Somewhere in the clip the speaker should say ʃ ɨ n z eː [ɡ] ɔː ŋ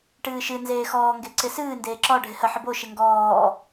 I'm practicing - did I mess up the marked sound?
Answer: yes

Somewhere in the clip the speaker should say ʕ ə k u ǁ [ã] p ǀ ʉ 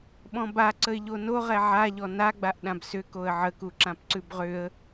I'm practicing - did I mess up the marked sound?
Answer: no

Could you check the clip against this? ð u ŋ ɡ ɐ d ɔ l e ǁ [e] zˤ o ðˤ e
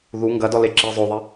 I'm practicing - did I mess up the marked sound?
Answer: yes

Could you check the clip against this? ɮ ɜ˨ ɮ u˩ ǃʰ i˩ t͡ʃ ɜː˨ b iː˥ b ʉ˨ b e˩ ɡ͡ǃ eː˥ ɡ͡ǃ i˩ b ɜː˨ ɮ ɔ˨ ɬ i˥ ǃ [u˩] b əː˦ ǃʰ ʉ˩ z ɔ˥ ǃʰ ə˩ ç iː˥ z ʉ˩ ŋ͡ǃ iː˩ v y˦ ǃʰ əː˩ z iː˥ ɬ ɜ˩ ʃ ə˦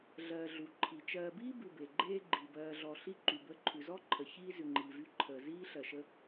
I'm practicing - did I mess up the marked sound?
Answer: yes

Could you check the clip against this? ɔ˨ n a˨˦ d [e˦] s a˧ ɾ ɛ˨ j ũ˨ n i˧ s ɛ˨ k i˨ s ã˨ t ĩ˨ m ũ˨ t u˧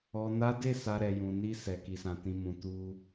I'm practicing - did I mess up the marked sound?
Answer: yes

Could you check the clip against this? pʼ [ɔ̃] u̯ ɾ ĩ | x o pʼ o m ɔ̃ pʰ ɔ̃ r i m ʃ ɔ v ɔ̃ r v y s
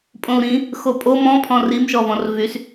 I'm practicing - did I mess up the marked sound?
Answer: yes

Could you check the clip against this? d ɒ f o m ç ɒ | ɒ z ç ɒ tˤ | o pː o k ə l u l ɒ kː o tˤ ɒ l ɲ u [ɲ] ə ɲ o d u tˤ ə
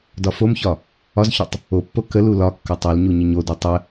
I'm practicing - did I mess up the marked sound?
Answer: no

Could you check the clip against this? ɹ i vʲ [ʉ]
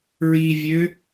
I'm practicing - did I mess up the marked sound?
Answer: yes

